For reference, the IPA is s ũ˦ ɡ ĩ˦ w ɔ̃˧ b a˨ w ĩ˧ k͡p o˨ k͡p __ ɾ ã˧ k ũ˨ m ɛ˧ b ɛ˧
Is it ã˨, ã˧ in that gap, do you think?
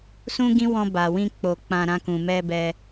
ã˨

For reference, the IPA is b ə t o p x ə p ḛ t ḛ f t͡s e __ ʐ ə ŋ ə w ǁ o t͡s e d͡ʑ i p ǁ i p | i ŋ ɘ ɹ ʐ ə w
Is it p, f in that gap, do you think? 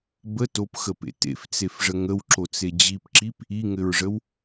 f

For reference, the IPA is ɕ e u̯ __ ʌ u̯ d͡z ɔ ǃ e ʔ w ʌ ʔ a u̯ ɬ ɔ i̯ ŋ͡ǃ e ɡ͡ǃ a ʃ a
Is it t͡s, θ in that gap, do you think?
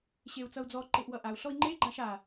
t͡s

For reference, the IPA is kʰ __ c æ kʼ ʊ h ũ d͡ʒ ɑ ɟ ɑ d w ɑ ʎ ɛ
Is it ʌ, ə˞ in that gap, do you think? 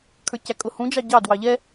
ə˞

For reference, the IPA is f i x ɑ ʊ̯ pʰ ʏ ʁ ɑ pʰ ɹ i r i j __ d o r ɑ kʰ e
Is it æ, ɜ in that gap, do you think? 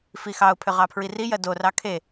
ɜ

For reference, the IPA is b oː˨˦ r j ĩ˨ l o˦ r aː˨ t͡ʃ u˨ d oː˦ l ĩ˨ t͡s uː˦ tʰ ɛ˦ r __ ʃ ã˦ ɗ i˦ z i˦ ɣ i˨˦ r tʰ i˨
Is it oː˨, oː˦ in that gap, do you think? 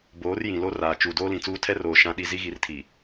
oː˨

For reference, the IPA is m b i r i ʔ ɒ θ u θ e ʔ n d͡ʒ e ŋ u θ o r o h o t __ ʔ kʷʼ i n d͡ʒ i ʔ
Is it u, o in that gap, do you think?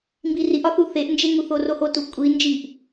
u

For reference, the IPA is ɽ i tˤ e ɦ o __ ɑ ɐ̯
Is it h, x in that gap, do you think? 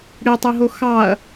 x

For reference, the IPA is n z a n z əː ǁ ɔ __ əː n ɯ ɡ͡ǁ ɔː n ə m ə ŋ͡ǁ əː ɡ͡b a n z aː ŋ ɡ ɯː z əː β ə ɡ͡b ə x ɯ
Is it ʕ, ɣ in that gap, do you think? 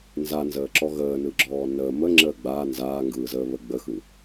ɣ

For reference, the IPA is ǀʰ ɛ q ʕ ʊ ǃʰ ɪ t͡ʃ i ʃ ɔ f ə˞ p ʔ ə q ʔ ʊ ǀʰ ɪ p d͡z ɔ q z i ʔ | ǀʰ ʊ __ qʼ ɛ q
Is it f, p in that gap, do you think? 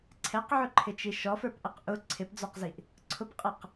p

